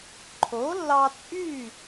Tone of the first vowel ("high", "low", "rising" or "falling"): rising